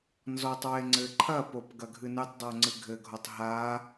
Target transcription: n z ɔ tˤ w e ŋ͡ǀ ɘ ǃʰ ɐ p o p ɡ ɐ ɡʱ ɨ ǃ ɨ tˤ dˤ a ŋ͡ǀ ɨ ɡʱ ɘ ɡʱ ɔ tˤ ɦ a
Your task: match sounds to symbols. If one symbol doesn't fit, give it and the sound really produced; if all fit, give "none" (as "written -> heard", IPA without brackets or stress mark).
ǃ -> n